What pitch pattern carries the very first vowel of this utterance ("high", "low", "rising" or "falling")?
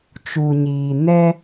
low